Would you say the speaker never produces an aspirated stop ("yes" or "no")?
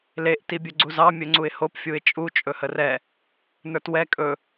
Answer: yes